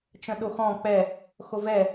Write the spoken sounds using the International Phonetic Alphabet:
t͡ʃœ̃ɗoxɔ̃ k͡pɛ | xovɛ

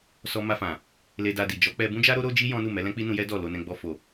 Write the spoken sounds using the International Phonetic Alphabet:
sɔ˧ma˧fã˨ | le˧da˧di˨ d͡ʒɔ˨˦k͡pɛ˧ bũ˦d͡ʒa˦ɾo˦ ɾo˦d͡ʒi˦ jɔ̃˦nu˦˨mɛ˨˦ lɛ̃˦k͡pi˦nũ˧jɛ˦ dɔ˦˨lo˧nɛ̃˧ ɡ͡bɔ˧fo˨

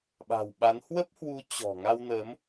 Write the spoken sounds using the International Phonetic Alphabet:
ɓa̤˨˩wɓa˨˦n hwə˦˥p̚hwu˨˦ t͡ɕɔ̤˨˩ ŋa˧wnəː˨˦m

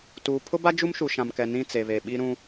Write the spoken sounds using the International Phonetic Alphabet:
tuː˨pʰʊ˦ba˦ d͡ʒu˦mʃu˨ʃã˨m kɛ˨nĩ˦˨ t͡se˨βe˨ ɓi˦ɾũ˦

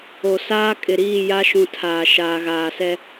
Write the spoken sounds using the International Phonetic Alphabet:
o˨saː˦ kʼɪ˨ɾiː˦˨ ja˦ʃũ˨ tʰaː˨ ʃaː˨ ɣaː˨sɛ˦

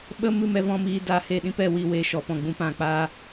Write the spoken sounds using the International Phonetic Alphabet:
ɓə˦mɨ˦˨mɛ˦ vɔ̃˦miː˧ daː˧he˧ɗĩ˦pɛ˧ wi˧we˧ʃɔ˨ pɔ̃˨ɡ͡bũ˧pã˨k͡paː˧

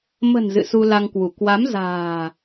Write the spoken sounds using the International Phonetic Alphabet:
mə̤˨˩n zɨ̰˧˨su˧la˧ŋkwu˧˩ kwa˨˦mza̤ː˨˩

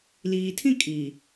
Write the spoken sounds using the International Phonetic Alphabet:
liː˨tʰĩ˦kʼiː˨

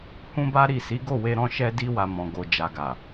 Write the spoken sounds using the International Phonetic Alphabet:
hũ˦ba˦ɾi˦˨ si˨˦ɡo˦˨we˧ ɾɔ̃˧ʃɛ˧di˧wa˨ mɔ̃˨ɡo˨ d͡ʒa˨ɡa˨

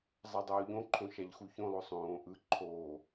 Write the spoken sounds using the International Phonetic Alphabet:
zˤadˤoːʎõǃʰõ ʃaʎxuçõlˠo sˤõː ʔɯ ǃʰoː

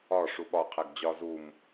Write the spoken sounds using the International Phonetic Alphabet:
ɒ ʂuɓɒ qʰæɡd͡ʑɒ zum

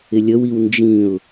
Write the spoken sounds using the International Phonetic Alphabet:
ɪlʲəwiw nd͡ʒĩʊ̯

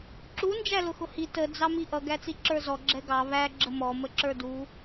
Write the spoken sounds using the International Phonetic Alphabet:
ǁu nd͡ʒælʊxʊhi tə d͡zɑmiʔʌ ɡæt͡siǁə˞zɔ ɡ͡ǁɛɡɑ βæ ɡ͡ǁəmɔ məǁə˞du

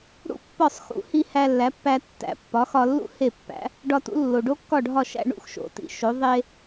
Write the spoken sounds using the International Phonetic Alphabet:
ɽṵ˥˩pːɒ˥˩sˤ xṵ˩˥hi˧ hæ˧lːæ˩˥pːæ˧ tːæ̰˩˥ pːɒ˩˥xɒ˧lːṵ˥ he˥˩pːæ̰˩˥ | ɖɒ˧tṵ˩˥ lːo˩ɖo˥kːɒ˥˩ɖʱɒ˥˩ ʃæ̰˧ɳṵ˥˩xʃo̰˩ tḭ˩˥ʃo˩˥ ðˤe˥

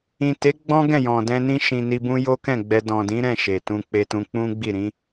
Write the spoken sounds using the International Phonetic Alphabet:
ĩ˨te˨˦ ɡ͡bɔ̃˦ɡɛ̃˦˨ jɔ̃˨dɛ̃˧nĩ˦ ʃĩ˧ni˧bũ˦ jo˦kɛ̃˦˨ɡ͡bɛ˧ dɔ̃˨dĩ˨˦ɾɛ̃˦˨ ʃe˨ tũ˧k͡pe˧tũ˧ k͡pũ˦ɡ͡bi˦˨ ɾĩ˨˦

